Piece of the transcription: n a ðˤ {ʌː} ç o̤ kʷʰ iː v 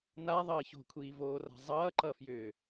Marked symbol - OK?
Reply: yes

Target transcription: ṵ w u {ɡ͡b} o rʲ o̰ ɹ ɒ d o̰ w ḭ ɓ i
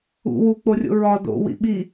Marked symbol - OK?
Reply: no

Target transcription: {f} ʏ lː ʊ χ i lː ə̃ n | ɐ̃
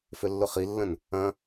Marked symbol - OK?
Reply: yes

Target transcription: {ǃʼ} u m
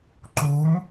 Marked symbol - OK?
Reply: no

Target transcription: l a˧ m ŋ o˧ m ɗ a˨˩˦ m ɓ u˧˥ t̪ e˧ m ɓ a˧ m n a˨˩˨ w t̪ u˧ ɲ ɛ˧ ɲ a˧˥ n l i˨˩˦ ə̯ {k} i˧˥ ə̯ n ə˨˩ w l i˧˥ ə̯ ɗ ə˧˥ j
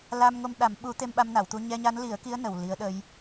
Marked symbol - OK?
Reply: yes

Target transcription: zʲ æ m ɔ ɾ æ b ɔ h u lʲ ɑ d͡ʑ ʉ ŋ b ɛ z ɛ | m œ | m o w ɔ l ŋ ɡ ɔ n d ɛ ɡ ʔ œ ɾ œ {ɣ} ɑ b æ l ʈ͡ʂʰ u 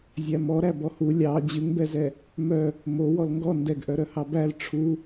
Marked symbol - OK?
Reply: no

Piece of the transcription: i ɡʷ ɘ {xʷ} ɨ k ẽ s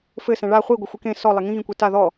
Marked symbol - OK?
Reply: yes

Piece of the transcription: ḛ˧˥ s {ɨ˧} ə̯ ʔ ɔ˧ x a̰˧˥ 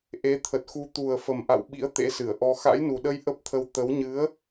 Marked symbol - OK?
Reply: no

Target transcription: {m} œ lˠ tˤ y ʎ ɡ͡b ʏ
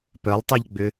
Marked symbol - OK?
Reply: no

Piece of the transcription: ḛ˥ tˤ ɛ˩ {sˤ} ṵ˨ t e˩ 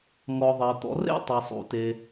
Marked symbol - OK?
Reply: yes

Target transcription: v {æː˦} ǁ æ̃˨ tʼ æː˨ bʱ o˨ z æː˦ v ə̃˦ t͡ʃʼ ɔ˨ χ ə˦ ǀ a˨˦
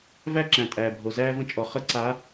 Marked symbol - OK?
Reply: no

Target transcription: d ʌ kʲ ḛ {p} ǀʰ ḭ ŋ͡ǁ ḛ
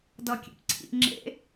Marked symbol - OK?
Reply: yes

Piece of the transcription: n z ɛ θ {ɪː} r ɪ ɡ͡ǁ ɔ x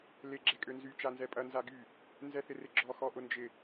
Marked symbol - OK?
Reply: no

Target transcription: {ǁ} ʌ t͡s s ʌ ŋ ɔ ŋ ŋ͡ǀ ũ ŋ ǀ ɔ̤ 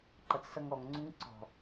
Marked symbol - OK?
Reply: no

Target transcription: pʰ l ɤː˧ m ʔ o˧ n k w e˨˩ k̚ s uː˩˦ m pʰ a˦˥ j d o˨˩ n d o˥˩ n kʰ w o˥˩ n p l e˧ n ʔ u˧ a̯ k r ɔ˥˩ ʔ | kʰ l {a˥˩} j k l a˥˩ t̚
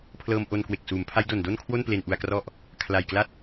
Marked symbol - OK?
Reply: no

